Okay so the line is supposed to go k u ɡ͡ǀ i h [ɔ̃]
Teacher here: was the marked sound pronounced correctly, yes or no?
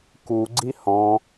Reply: yes